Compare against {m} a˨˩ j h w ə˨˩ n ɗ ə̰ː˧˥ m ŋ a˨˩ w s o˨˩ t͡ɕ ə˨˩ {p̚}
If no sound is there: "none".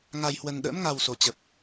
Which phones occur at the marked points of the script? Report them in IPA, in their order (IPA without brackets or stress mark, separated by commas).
ŋ, p̚